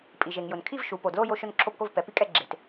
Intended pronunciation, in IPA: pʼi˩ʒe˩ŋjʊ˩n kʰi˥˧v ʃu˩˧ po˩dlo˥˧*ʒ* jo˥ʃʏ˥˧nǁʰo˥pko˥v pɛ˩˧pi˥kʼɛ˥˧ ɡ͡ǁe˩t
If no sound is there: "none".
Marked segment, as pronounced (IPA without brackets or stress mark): none